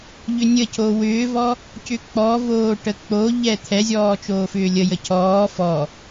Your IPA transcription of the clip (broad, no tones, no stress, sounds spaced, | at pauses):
ʎ ʏ nʲ ə c o w ʏː v ɔ | c ʏ k͡p ɔ v oː ʈ ə k͡p o ʎ ɛ t̪ʰ ɛ zʲ ɔː t͡ʃ oː f ʏː lʲ ə j ə cʰ ɔː f ɔ